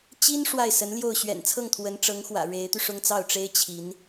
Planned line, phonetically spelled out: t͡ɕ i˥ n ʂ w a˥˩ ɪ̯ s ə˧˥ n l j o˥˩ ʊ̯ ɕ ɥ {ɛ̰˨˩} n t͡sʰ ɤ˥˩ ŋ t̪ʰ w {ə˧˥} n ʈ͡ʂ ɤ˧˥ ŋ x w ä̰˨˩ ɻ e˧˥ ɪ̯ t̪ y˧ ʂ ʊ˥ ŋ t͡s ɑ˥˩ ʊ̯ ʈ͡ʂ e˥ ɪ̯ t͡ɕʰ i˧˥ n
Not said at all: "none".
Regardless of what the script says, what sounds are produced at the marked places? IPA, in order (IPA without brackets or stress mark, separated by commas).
ɛ̰˨˩, ə˧˥